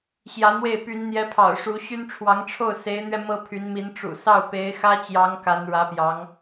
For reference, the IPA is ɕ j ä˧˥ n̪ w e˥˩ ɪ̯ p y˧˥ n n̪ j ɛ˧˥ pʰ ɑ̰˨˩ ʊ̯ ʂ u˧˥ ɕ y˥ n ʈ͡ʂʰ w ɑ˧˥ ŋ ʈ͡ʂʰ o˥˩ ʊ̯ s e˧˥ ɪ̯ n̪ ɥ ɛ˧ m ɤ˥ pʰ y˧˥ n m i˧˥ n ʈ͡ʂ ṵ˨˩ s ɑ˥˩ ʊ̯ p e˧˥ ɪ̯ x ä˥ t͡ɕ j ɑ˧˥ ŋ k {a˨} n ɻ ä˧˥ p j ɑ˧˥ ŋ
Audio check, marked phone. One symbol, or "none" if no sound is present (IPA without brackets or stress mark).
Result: a˧˥